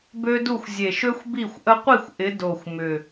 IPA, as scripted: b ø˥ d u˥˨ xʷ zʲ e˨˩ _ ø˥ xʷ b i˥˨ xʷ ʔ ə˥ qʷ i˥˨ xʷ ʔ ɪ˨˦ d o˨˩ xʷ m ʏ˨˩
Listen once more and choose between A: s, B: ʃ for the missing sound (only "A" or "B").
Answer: B